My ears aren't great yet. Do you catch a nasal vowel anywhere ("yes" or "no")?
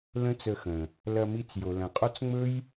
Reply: yes